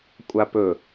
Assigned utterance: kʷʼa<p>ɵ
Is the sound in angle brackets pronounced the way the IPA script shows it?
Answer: yes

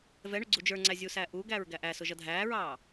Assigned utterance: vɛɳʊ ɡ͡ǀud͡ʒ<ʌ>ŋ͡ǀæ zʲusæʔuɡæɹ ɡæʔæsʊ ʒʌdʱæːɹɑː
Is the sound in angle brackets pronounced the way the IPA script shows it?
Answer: no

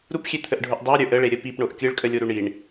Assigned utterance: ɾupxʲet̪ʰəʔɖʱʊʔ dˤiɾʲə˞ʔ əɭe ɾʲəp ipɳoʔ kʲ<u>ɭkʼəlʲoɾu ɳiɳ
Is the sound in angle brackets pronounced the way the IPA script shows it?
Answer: no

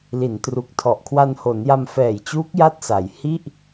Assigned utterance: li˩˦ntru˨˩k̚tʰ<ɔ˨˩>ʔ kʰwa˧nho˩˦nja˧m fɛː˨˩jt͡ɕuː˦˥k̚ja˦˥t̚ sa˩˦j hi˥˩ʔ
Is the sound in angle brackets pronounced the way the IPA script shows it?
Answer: yes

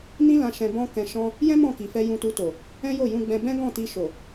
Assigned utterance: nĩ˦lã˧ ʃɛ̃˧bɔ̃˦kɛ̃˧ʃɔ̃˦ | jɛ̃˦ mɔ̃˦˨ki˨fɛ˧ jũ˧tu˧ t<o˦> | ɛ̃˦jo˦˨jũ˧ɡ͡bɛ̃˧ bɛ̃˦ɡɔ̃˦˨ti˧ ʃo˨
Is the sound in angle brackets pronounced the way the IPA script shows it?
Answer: no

